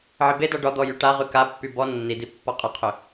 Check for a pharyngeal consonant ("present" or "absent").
present